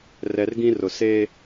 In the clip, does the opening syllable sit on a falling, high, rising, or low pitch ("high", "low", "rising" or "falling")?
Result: low